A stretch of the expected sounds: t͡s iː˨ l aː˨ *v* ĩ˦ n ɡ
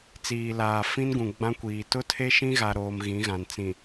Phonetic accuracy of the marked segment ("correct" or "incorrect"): incorrect